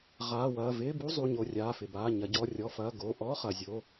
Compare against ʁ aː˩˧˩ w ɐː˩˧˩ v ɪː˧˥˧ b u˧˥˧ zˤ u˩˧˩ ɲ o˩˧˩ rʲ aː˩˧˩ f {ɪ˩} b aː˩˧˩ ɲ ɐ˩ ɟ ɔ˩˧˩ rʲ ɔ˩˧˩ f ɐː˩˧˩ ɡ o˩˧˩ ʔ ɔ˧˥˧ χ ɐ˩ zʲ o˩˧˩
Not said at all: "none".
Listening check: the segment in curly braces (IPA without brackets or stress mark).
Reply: ɪ˩